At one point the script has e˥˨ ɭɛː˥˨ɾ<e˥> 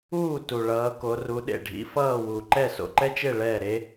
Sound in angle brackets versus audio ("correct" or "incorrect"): correct